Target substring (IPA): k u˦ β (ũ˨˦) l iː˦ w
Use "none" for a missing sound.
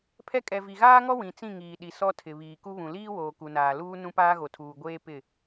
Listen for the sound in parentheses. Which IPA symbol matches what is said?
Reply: ũ˨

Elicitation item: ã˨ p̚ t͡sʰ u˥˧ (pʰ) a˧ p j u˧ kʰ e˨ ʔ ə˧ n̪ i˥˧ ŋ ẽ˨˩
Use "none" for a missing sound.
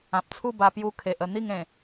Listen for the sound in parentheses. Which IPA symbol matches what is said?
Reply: b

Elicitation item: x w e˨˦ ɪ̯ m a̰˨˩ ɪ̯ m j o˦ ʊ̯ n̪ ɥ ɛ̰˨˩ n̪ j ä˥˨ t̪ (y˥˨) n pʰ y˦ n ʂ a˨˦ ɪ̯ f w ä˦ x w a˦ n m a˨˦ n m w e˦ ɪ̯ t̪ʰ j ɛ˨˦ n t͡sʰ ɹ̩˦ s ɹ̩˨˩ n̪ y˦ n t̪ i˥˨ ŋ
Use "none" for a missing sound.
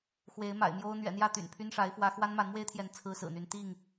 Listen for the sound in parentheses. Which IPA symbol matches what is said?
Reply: y̰˨˩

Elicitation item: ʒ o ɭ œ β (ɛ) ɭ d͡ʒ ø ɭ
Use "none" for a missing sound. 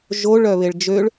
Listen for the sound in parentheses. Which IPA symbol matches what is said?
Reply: e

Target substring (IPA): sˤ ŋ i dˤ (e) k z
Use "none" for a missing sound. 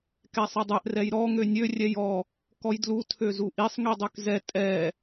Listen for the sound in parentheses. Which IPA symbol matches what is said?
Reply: ø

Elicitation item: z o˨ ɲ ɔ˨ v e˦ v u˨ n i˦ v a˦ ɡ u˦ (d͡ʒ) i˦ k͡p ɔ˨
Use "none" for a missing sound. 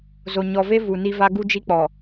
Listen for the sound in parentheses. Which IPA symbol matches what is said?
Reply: d͡ʒ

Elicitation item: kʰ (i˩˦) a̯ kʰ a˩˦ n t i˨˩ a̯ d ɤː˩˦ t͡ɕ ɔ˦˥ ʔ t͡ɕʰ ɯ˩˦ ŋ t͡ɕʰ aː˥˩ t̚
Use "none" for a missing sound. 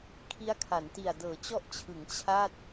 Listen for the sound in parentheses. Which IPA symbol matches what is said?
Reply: i˦˥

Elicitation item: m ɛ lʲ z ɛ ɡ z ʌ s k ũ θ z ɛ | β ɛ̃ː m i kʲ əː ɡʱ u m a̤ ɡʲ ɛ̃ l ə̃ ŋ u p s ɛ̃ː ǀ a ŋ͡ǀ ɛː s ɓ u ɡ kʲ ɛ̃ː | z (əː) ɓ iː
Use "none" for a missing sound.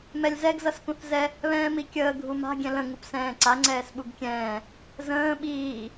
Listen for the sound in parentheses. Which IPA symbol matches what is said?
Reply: ə̃ː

